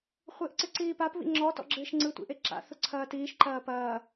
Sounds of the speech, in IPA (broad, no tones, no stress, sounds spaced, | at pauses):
χʷ ɪː ʔ ǀ ɪ ǀ iː p a p β ḭ ŋ͡ǁ ɔ t ɔ̰ ɡ͡ǁ ɪː ʃ ŋ͡ǀ ɯ tʷ ḭ ʔ e ǁ a̰ θ ʊ ǀʰ ɐː t iː ʃ ǃ ɐː p ɐː